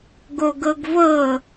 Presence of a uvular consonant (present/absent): absent